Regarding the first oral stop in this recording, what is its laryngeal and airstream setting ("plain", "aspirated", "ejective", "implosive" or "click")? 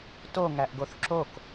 plain